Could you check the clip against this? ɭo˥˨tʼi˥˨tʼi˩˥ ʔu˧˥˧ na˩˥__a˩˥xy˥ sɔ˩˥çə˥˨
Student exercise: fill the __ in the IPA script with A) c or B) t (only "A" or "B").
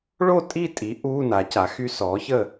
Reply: A